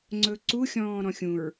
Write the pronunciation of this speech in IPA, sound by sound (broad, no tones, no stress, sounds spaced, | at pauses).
ŋ͡ǀ ɵ ǀ u xʲ ɔ̃ː ɾ ɔ̃ xʲ ũ ɹ